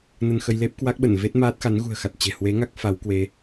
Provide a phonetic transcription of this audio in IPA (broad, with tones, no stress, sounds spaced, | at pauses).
n ə˧ n x ə˧ j l e˦˥ p̚ k w a˦˥ k̚ ɓ ə˧˩ n v e˦˥ t̚ m aː˦˥ t̚ x a˨˦ n ɣ ṳ˨˩ ə̯ x a˨˩ t̚ t͡ɕ e̤˨˩ h w e˨˦ ŋ a˦˥ k̚ f a˨˦ w k w e˨˦